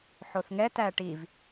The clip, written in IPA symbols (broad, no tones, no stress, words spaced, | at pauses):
ħoθŋɛt æʈiv